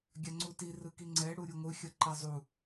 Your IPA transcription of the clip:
ɡʲ a ŋ͡ǀ u t i r ɯ k i ŋ͡ǀ ɛ ɽ u ɾʲ u ŋʷ ɯ xʲ ʌ ǃ i zˤ u

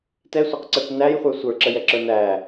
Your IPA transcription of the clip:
t ɛ sʷ æ q ǀ ɛ kʷ n æ j χʷ ə˞ sʷ ə˞ ǁ ə j ɛ ǁ ə˞ n æ

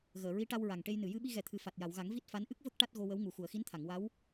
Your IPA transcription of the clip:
ɣ əː˨˩˨ ɹ i˧˥ ʈ a˧ w ɹ a˨˩ ŋ ʈ e˧ j n ɨ˨˩˨ j ɨ˧ ɓ i˧ ɣ ɛ˨˩ t̪ʰ ɨ˨˩ f a˨˩ t̚ j a˨˩˨ w ɣ a˨˩˦ ŋ v i˦˥ t̚ f a˧˥ n ʔ ɨ˦˥ k̚ v ə˦˥ k̚ ʈ a˦˥ t̚ ɣ o˧ w ə˧˥ w ŋ u˨˩ x u˨˩˨ ə̯ x i˧˥ n t̪ʰ a˨˩˨ ŋ w a˧˥ w

